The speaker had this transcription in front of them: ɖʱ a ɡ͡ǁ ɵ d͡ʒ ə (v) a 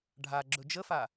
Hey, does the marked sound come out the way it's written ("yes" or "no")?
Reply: no